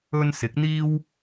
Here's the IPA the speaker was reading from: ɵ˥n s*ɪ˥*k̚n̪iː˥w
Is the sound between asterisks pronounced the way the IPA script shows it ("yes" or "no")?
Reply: no